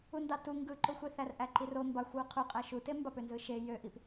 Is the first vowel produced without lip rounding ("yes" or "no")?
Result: no